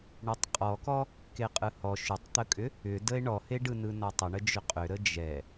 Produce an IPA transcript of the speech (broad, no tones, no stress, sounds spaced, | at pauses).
ɳ e tˤ qʼ ɔ k ɔ | k e qʼ ɯ h ɔ ʃ ʏ tˤ t̪ ə kʼ ʏ | ʏ d ə e̯ ɳ ɔ h e ɖ ɯ n ɯ n ɔ tˤ ə ɳ ə d͡ʒ ʏ qʼ ʏ ɾ ə d͡ʒ ɛ